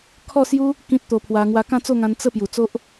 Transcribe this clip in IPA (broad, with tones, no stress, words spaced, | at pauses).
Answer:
kʰɔ˥˧sju˦ | kĩ˦t̚t̪o˧pʰwa˧ ŋwa˧kã˥˧t͡so˥˧ŋã˧n t͡sə˥˧ pju˨˩t͡so˦ʔ